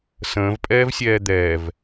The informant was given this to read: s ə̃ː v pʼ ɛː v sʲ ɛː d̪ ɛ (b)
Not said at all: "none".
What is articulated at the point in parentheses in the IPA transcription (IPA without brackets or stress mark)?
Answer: v